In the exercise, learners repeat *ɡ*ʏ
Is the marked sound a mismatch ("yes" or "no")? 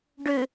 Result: yes